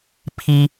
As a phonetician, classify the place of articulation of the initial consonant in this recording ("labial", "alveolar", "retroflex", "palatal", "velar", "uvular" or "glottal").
labial